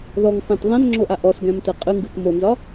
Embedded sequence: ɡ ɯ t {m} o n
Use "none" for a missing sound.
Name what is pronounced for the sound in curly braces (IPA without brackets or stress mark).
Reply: m